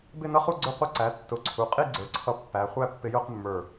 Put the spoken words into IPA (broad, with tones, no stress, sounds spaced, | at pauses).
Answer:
b ɪ˥˧ n ʌ˦˥ χ u˥˧ ɡ͡ǀ ʊ˥˧ qʷ ʌ˥˧ ǀ æ˩˥ tː ʊ˩˥ ǀʰ u˩˧ qʼ i˥˧ ɡ͡ǀ ə˞˩˧ ǀʰ ʌ˧ pː æ˩˧ χʷ æ˥˧ pː ɪ˧ j ʊ˥˧ q mː ə˞˧˩